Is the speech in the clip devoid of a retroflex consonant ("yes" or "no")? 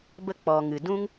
yes